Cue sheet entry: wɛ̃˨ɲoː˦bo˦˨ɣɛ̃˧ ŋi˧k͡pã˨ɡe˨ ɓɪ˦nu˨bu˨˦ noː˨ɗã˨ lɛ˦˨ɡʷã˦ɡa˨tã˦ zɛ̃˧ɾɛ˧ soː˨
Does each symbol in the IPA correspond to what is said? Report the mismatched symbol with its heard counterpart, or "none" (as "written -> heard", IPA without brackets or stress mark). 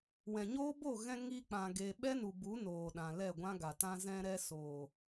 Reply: ɪ˦ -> ɛ˦